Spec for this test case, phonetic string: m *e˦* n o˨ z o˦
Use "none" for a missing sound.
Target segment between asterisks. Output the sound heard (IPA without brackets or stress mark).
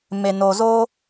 e˨